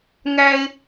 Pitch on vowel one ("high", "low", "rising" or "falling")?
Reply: high